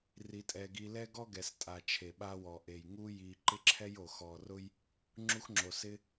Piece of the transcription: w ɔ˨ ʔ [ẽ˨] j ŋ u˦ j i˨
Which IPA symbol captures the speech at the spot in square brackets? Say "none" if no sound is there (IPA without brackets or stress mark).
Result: e˨